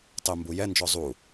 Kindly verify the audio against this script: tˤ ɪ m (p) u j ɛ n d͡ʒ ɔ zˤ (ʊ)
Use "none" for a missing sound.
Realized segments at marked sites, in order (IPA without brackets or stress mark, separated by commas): b, u